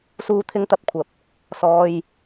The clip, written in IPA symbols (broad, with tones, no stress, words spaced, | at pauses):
suː˧t̪ʰɪ˧ŋt̪ɐ˧p̚kʷʰɐ˨p̚ | sɔː˧j